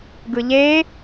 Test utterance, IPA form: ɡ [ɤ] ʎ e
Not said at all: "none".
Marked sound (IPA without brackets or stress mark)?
ɯ